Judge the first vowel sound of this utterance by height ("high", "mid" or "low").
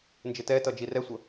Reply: high